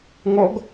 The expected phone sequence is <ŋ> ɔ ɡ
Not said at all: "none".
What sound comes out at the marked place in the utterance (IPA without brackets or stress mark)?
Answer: ŋ